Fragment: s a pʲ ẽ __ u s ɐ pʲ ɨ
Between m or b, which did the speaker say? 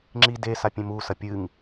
m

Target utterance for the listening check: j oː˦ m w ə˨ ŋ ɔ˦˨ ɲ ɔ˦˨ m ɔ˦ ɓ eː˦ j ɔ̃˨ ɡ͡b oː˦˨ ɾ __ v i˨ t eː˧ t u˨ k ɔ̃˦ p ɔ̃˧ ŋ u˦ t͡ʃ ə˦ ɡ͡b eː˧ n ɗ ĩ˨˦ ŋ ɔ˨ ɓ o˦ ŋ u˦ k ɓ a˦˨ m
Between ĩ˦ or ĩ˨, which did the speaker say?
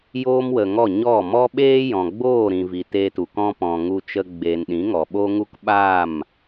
ĩ˨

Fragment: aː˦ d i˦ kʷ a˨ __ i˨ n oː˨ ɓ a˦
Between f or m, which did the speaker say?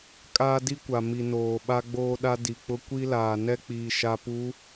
m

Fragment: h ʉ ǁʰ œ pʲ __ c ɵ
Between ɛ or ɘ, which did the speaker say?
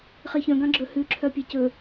ɛ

